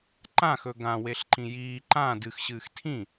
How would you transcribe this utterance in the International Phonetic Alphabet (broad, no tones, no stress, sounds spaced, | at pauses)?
ǃ ã x ɵ ɡ ã w e ɬ ǃ ĩ j iː ǃ ã d ɨ x ɕ ɨː x tʰ ĩ